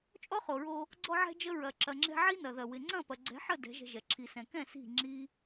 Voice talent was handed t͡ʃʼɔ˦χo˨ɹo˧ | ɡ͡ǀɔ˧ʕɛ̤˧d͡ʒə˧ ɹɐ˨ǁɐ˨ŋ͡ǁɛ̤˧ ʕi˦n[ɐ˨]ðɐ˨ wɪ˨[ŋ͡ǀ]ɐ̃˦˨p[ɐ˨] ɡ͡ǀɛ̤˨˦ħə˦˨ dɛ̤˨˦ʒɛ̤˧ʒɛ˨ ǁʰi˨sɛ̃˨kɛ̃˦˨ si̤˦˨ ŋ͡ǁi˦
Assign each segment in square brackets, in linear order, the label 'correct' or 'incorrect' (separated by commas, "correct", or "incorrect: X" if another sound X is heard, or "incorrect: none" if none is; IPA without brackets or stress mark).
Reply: correct, correct, correct